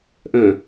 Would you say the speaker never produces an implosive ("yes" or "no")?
yes